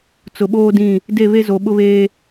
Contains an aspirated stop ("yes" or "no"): no